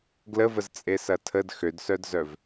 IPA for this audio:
ɡləvəzt͡sʼesɐ tʰəd xødsœdzœv

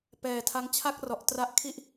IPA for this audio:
pɛː˨˩tʰa˦˥ŋ t͡ɕʰa˥˩k̚rɔ˨˩ʔ tra˦˥ʔkʰi˥˩ʔ

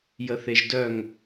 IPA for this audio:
jəθeʒdœŋ

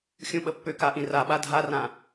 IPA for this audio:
xʲũɓəpːʏka ʔĩraɓa dʱarã

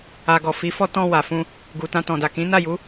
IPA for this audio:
a˨ɡɔ˨fi˨˦fɔ˦ tɔ̃˧ wa˨fũ˧ | ɡu˨tã˧tɔ̃˨da˨ kĩ˨˦na˦˨ju˨˦

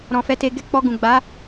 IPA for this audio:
ɾɔ̃˨fɛ˨˦te˧ɡɛ˦ k͡pɔ˧ɡũ˨ ɡ͡ba˨˦

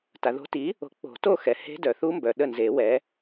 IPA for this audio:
ta˨ðo̤˦˥ ti˨˥ | o̤˨˥k͡po̤˨˩˦ to˥˧xɛ˨ he̤˦˥ dœ˨θu˦˥mbœ˨ ɗə˥˩nze˨˩˦wɛ˨˥

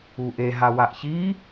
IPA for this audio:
uʔe ɦawaʔçi

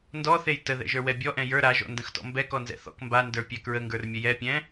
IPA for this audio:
ndɔθej təðɛ̰ʒə˞wɛ bʲɔʔɛ̃ jə˞ ɾaʒɔ̰ndə̃xtɔ̰ mbɛkɔnzɛ̰ θɔ̰k mbandə˞pʲɛ kɹəŋɡə˞rmʲə jɛpʲɛ̃

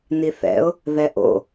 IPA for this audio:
niθɛ̰ʊ̯ | ðɛʔo̰

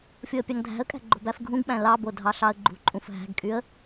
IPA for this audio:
fʲoə̯pʲɑŋdʱæ̤ə̯kʼæ̤ ɡ͡ǃo̤bæfɡʱũɡɓæ̃ lɑbo dʱɑɬɑə̯ɡ͡ǃṳǃʼũf ɦæ̤ɡkʼyə̯

